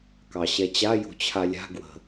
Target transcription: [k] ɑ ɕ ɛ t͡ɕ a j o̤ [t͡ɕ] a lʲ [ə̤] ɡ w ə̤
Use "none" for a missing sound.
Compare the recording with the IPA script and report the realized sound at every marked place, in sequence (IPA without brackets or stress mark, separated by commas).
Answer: k, t͡ɕʰ, a̤